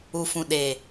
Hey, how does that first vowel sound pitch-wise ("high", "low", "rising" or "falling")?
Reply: low